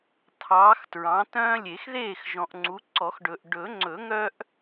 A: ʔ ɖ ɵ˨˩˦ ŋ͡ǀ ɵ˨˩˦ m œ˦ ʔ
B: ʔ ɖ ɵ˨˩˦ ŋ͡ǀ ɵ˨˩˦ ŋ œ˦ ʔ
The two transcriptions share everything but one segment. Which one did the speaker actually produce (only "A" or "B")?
B